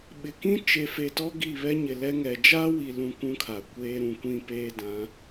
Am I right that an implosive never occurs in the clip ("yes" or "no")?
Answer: no